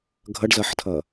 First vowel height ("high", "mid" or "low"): mid